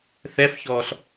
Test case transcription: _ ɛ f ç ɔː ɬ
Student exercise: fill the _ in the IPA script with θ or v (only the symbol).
θ